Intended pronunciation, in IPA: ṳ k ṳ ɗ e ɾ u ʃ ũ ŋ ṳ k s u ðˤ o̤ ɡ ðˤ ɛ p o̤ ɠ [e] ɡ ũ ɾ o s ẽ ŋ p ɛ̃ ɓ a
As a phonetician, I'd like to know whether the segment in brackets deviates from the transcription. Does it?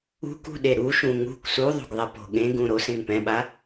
yes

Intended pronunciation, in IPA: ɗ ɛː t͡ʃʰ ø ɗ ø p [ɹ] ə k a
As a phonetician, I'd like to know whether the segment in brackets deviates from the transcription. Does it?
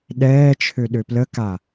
yes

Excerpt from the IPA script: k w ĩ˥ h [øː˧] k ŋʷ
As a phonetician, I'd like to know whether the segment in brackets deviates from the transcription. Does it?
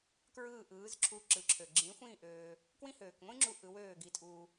yes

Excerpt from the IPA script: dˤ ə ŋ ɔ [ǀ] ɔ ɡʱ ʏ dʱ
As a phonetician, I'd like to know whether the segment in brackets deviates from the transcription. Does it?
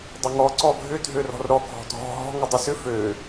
no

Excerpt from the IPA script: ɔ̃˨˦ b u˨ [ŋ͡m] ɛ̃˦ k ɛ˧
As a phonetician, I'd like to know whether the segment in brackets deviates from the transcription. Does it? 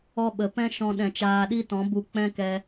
yes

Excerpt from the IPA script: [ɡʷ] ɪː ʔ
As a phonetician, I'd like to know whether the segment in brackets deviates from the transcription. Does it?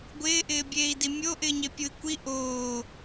no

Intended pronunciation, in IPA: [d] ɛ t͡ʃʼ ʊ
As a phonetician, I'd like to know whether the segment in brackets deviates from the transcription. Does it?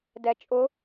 no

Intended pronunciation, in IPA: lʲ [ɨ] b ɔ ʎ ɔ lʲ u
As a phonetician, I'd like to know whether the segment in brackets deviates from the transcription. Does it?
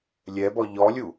yes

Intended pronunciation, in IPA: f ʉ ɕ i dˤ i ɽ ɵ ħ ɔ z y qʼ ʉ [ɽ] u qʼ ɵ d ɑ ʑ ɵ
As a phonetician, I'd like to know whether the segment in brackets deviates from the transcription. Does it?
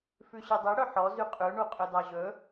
yes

